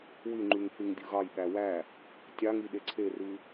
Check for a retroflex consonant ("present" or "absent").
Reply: absent